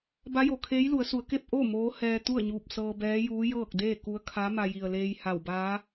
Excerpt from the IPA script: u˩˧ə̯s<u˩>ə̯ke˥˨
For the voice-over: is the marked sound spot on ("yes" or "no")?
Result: no